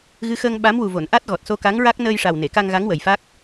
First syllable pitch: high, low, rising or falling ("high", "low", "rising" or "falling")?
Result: rising